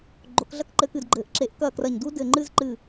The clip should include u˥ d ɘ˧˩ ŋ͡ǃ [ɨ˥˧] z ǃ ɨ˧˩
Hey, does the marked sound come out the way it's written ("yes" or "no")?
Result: yes